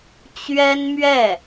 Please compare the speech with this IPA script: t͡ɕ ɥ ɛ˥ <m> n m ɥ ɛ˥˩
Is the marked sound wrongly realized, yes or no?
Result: yes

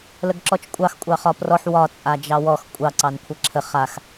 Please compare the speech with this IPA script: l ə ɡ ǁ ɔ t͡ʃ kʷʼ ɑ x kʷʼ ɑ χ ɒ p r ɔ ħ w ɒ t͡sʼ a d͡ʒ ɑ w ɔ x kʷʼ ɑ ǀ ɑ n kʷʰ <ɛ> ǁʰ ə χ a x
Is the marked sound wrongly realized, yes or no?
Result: no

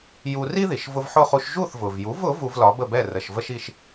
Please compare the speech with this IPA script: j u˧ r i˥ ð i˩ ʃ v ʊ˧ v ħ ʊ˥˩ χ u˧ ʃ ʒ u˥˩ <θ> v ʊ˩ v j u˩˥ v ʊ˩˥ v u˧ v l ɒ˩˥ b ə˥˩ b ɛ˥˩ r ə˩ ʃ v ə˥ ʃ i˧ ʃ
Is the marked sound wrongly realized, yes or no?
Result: no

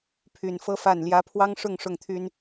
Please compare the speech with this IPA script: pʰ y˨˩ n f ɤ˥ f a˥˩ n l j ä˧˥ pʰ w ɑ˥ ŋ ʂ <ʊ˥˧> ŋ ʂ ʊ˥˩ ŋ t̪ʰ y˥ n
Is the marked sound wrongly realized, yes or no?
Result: no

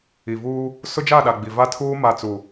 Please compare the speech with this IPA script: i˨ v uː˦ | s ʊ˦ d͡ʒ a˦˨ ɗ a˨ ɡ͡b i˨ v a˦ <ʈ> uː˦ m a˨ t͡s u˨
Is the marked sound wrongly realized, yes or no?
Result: yes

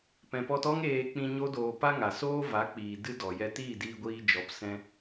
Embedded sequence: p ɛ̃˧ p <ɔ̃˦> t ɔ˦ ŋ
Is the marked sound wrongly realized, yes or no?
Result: yes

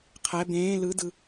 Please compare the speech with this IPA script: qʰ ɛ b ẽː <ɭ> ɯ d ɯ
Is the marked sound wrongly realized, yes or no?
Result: yes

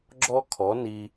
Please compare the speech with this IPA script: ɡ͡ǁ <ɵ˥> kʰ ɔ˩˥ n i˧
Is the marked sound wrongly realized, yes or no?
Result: yes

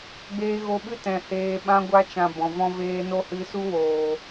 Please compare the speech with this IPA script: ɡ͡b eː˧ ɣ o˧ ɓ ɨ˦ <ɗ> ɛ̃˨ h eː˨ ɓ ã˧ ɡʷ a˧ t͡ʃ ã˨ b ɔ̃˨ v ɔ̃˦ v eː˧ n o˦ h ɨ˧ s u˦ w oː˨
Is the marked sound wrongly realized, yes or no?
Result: yes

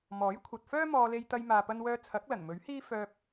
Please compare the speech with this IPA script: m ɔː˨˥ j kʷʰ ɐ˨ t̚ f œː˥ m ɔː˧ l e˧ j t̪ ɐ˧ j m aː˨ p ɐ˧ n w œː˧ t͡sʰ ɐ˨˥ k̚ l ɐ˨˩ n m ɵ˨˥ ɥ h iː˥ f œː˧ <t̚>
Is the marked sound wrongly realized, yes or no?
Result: yes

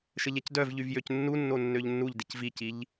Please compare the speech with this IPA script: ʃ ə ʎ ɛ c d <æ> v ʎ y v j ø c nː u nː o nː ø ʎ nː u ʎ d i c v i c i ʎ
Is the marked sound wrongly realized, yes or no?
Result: yes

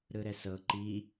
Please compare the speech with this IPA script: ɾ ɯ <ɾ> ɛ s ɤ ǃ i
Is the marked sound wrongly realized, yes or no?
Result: no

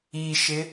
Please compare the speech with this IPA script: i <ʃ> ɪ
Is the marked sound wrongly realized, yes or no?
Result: no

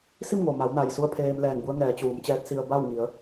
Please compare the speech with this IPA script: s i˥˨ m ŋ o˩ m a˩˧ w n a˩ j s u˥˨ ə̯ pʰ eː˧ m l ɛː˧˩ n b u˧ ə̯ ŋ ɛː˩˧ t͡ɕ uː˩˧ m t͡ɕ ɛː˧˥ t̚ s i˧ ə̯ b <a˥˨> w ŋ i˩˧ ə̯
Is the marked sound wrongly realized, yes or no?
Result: no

